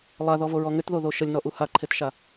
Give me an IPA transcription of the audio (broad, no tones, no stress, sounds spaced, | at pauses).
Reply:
lˠ a ð ɔ v o ɹ ɔ ŋ ʏ t ð o ð o ʃ ə lʲ n ɔ ʔ u h a ǃʰ e t ʃ a